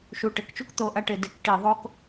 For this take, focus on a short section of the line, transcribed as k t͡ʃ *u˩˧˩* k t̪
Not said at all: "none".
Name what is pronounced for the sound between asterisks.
u˥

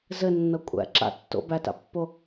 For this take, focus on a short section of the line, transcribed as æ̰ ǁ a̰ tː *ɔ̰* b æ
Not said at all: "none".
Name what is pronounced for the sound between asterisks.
o̰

